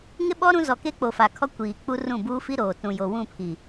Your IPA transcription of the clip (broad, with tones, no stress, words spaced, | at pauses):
ŋɪ˦ɓɔ˦ ɾũ˦ zɔ˨ ke˦k͡po˨fa˨kʰɔ˦ kʷiː˨k͡pu˦ rũ˦˨buː˦fi˦ ɾoː˨ tũ˨jo˨ wũ˦˨pʰi˨